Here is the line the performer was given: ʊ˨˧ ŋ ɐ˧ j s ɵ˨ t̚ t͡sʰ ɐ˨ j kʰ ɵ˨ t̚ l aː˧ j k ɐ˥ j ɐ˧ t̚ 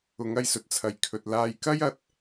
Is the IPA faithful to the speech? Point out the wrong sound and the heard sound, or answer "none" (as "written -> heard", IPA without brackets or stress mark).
none